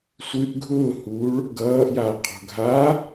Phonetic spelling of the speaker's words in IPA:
sʷ ɨ ʔ ɡʱ ʊː h uː ɭ | ɡ ʌː ʔ j a qʰ o̤ ɡʱ a

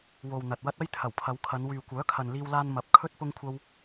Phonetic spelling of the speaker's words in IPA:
w o˨ w n̪ ɐ˨ t̚ w ɐ˥ t̚ ɐ˥ j t̪ʰ ɐ˨˩ w pʰ ɐ˨˧ w kʰ ɐ˨˧ n w yː˨ kʷ œː˨˥ kʰ ɐ˨ n l iː˧ w l aː˧ n m ɐ˨ p̚ kʰ ɵ˥ t̚ p ʊ˥ ŋ kʷʰ ɐ˥ w

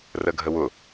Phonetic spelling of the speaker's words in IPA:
r ə ɡʱ ə w ʊ

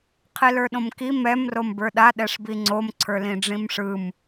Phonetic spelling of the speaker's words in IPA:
qʰ i l ə˞ ɗ õ m k i m ɛ m r o m b ə˞ ɗ a ɗ ɛ ʂ b i ŋ͡ǀ o m ǀʰ ə˞ l ĩ ɖ͡ʐ ĩ m ʂ ɯ m

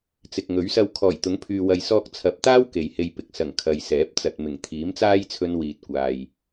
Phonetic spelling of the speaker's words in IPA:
t͡s ɪ˨ k̚ ŋ ɵ˨˥ ɥ s ɐ˧ w kʰ ɔː˨˩ j t̪ ʊ˨˥ ŋ pʰ yː˨ w ɐ˨ j s ɔː˧ k̚ t͡sʰ ɐ˨˥ p̚ t̪ aː˥ w k e˨ j h e˧ j p ɪ˨ k̚ s ɐ˨˩ ŋ kʰ ɐ˨ j s ɛː˨˥ p̚ t͡s ɐ˨ t̚ m ɪ˨˩ ŋ t̪ʰ iː˨˥ m t͡s aː˥ j t͡sʰ ɵ˧ n w iː˨ t̚ kʷ aː˨ j

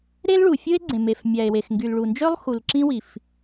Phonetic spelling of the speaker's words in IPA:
ɾ e˥ l ɭ u˩ fʲ ɯ˥ e̯ ɡ͡ǀ ẽ˩ m e˩ f mʲ æ˩ e̯ w e˩ x ŋ ɡ y˩ l ɭ u˩ n d͡ʒ ø˥ lˠ x u˩ l ǁ ĩ˥ w i˩ f

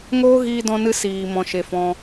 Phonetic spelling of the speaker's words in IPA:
ŋ oː˦ ɣ iː˧ d ɔ̃˧ n ɨ˧ s iː˨ m ɔ̃˨ ʃ e˨ f ɔ̃˧

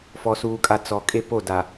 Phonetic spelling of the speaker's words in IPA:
f ɔ˨ s uː˨ kʼ a˨ t͡s ɔ˨ kʼ e˦ p o˦˨ d a˨

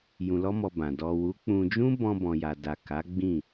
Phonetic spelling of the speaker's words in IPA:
j ũ˧ l ɔ˦ m ɔ˧ b ã˨ d ɔ˨ w u˨˦ k͡p ũ˧ d͡ʒ ũ˦ b ɔ̃˧ b ɔ̃˨ j a˨ d a˨ k a˨˦ ɡ͡b ĩ˦˨

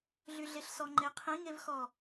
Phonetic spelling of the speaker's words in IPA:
ɮ y ɮ e ɬ s ɔ ŋ͡ǃ e qʰ ĩ ŋ e v x ɔ

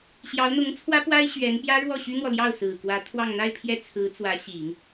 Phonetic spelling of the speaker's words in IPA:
ɕ j ɑ˧˥ ʊ̯ n̪ ʊ˧˥ ŋ t͡sʰ w ä˥ p w a˥ ɪ̯ ɕ ɥ ɛ˧˥ n p j ä˥ ɻ w ɔ˥˩ ɕ y˥ n̪ w ɔ˨ l j ɑ˥˩ ʊ̯ s ɹ̩˨˩ k w ä˧˥ t̪ʰ w ɑ˥˧ ŋ n̪ a˥˧ ɪ̯ pʰ j ɛ˥˩ t͡sʰ ɹ̩˧˥ t͡s w ä˧˥ ɕ i˨˩˦ ŋ

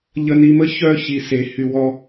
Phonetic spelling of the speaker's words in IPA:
ʎ ə˧ n i˧ m ə˦ ç œ˦ ç i˧ s e˧ h y˧ w ɔ˦

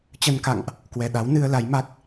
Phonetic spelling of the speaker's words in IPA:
t͡ɕ ə˧ n k a̰˧˨ ŋ ʔ | k w ɛ˨˩ ɗ a˨˦ w n ɨ˧ ə̯ l a˨˦ j m a˦˥ k̚

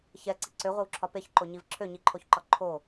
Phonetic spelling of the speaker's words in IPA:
ç ɛ ǀ i ǀ ø ʁʷ ɘ w ǁʰ ɒ p e ç ǃ o ɲ i v ǁʰ ø ɲ i ǃʰ o ç ǃ ɒ ǃʰ o

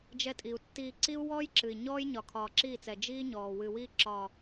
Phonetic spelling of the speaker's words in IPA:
d͡ʒ ɛ˧ tʼ i˨ u̯ tː iː˧ ǀ i˦ u̯ w ɔː˦ j ǁ ɨ˨ i̯ ɲ ɔː˦ j ɲ ɒ˨ kʰ ɒː˨ ǁ iː˦˨ t͡s ɛ˨ d͡ʒ iː˦ ɲ ɔː˨ w ɨ˨ w i˧ ǁ ɒ˨

